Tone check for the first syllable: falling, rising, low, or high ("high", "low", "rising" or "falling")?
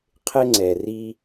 high